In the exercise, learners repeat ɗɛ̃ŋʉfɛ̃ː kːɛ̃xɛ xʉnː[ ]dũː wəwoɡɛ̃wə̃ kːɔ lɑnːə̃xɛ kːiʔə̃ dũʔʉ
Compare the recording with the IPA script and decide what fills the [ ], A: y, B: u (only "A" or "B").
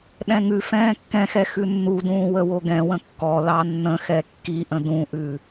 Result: B